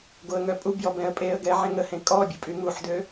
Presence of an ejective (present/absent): present